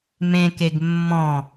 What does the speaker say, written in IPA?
m ẽ k e ɡ mː ɔ̃

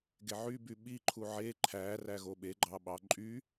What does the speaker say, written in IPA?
ɡ e ʕ y b y ɓ i ǃʰ u ʕ e ǃʰ æ r æ ɣ o ɓ e ɡ͡ǃ ɑ ɓ ɑ ǃʼ y

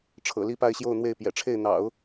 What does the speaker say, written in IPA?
ʈ͡ʂʰ ɤ̰˨˩ l i˥˧ p a˥˧ ɪ̯ ɕ j o˥˧ ʊ̯ n̪ w e˥˩ ɪ̯ p j ɛ̰˨˩ ʈ͡ʂʰ e˥˩ ɪ̯ n̪ ɑ̰˨˩˦ ʊ̯

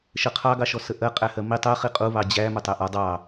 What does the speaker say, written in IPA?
ʃ ə qʰ ɑ ɡ ɑ ʃ ɔ s ə ʔ ɜ qʼ æ h ɜ m i tˤ ɜ χ i qʼ u β ɑ d͡ʑ æ m ʊ tˤ æ ʔ ɒ dˤ ɑ

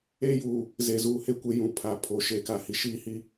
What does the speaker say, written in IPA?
eː˦ j uː˨ | z e˨ z uː˨ h e˦˨ kʷ e˦ j ũ˨ pʰ a˨ pʰ oː˨ ʃ eː˨ k a˨ h i˨ ʃ iː˦ h i˦

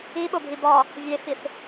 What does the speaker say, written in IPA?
i ɓ o bʱ i b ɒ | vʲ e f i θ

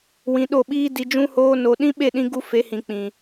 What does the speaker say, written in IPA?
w ĩ˨˦ ɗ o˦˨ ɓ iː˦ d i˧ d͡ʒ ũ˦ h oː˦ n o˧ ɗ ĩ˦ ɓ e˦˨ ɗ ĩ˧ ɡ u˦ f e˨˦ h ĩ˨ k͡p ĩ˨

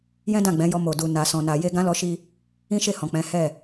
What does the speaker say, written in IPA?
j ɛ̃˦ d ã˦˨ ɡ͡b ɛ̃˨˦ j ɔ˧ m o˨ d u˨ n a˨ s ɔ̃˨ n a˨ j e˧ ɡ ã˦ l ɔ˧ ʃ i˧ | ĩ˦ ʃ e˦˨ h ɔ̃˨ k͡p ɛ̃˨˦ h ɛ˦˨

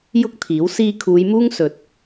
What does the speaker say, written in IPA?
j ʊ˥ k̚ t̪ʰ iː˨˥ w s iː˧ kʰ uː˨˧ j m uː˥ ŋ s ɵ˨˥ t̚

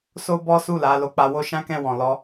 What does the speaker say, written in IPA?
s o˦ b ɔ˦ s u˦˨ l a˨˦ l o˧ k͡p a˧ w o˦ ʃ ã˦ k ɛ̃˦˨ w ɔ̃˨ l ɔ˧

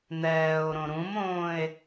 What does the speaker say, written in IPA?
n̪ ɛː o̯ ɾ õ ɾ ũ m õː e̯

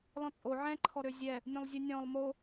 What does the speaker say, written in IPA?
l ɔ̃ t͡sʼ o ʕ ɛ̃ ǃʰ ɔ ɾ ø zʲ ɛ | nʲ õ lˠ zʲ ʉ nʲ ɔ̃ lˠ m o

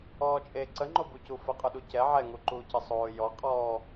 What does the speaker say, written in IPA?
ɔː t͡ʃʼ e ǀ ə ŋ͡ǃ o b u c u f ə qʼ u ɗ u c ɛ ʕ ɛ ŋ u ǃ uː c ə sˤ oː j ɔ qʼ ɔː

